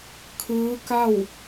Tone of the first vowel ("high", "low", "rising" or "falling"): rising